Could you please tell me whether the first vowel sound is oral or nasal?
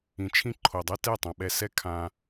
nasal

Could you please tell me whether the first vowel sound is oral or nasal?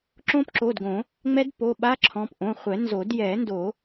nasal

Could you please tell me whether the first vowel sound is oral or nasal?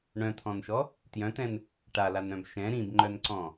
nasal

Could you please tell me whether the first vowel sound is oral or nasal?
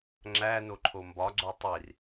oral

